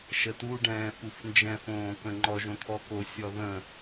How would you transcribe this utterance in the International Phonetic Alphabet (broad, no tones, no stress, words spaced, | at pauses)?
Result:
ʃətu ɖɛ̃ːfufnd͡ʒɛ̃ fõːkə̃ŋ͡ǃɔ ʒõt̪ʰɔko sʲɔðə̃